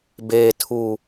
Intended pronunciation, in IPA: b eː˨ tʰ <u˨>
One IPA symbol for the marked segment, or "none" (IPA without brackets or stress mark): u˨